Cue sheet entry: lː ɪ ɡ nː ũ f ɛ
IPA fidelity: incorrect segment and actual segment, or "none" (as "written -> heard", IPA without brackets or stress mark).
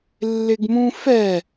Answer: nː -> m